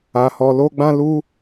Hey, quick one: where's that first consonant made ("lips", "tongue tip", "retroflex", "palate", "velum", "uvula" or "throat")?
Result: throat